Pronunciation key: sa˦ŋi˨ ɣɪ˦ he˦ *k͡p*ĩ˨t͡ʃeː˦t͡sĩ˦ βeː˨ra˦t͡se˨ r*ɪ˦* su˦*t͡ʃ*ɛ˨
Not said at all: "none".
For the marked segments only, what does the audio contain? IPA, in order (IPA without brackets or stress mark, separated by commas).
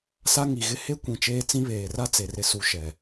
kʷ, ɪ˦, ʃ